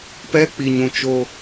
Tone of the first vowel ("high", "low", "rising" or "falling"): high